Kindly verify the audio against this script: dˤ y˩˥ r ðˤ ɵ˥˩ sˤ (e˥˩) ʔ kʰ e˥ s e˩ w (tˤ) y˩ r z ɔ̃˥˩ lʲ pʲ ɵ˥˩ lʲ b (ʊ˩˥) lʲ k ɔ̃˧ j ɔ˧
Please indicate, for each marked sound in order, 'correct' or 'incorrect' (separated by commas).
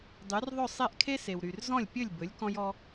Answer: correct, incorrect, incorrect